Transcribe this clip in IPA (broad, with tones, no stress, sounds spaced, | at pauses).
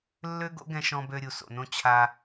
lː ø˥ ɡ o̰˥ ɡ ɛ̃˧ ʃ ɔ̃˧ b ø˧ ɾʲ u˩ s o̰˩ n õ˧ t͡ɕʰ a˧